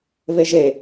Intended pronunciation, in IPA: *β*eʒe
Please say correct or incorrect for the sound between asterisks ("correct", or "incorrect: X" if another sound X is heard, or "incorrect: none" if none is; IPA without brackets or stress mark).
correct